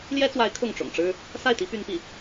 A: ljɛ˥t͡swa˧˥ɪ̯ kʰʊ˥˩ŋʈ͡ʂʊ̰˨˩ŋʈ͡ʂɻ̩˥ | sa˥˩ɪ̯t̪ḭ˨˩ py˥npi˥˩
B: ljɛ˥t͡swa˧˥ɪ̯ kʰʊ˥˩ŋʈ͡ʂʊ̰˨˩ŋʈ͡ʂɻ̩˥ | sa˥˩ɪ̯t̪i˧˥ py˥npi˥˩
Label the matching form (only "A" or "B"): B